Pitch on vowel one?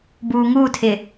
low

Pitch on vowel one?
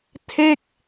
falling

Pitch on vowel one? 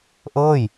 falling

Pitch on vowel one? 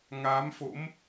rising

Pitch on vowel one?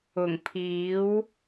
low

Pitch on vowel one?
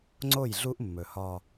falling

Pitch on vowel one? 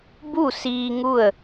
falling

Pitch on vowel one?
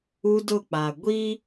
high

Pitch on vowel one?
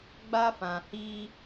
high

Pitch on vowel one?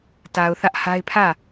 low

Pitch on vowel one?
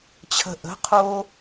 low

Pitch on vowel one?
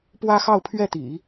high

